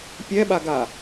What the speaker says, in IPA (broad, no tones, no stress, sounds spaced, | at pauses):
pʲ ɛ ɓ a ɡ a